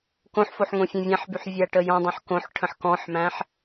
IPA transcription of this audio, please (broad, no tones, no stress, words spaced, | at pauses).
kõħfoħ ŋõfʲæ̃vʲæ̃ħbyħ vʲæʈəjɔ̃dˤõħ kõħ ʈʰə̃ħkɔ̃ħmæ̃ħ